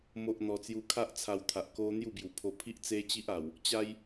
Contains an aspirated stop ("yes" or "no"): yes